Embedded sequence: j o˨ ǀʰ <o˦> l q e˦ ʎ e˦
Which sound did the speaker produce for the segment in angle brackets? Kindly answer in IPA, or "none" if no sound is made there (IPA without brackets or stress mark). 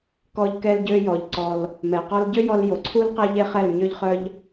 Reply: u˦